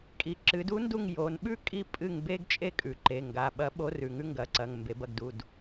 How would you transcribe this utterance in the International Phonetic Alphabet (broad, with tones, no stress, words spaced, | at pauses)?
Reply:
kʼi˩ ǁɨ˩˧du˧˥ndu˦˨ŋ jo˩˧n ɓʉ˥kʼi˦˨ pʼɨ˦˨ŋ be˥ɡ t͡ʃʼe˥kʼʉ˩ǃe˩˧˩ ŋɡa˩˧˩ɓɐ˧˥ ɓo˧˥rʉ˩ ŋʉ˥ŋɡɐ˩˧˩ǀɐ˩˧˩ŋ mbe˩˧bɐ˦˨ɡdu˩˧˩d